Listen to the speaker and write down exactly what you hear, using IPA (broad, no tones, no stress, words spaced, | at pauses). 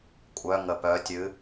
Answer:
kʷʼœ ŋəpœtʲɨ